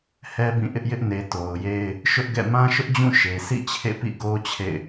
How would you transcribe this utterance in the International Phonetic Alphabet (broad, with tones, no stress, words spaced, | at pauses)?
hɛ˦bĩ˦˨ ʔɪ˦ʔjɪ˦ʔ ne˨ to˨ʊ̯je˦ɪ̯ | ʃʊ˦ʔɡɛ̰˦˨ mã˦ʃʊ˦ʔd͡ʑũ˦˨ ʃe˨sḭ˦˨ t͡ɕʰḛ˦˨pḭ˦˨ ɡo˦ t͡ɕʰḛ˦˨ɪ̯